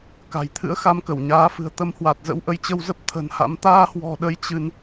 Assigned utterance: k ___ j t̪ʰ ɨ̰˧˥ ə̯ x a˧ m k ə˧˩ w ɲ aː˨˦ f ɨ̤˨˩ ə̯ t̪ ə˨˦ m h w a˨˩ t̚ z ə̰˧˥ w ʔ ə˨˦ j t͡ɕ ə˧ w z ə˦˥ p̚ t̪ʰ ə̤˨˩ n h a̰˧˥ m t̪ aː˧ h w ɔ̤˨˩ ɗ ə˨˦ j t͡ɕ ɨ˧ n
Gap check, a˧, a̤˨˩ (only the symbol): a̤˨˩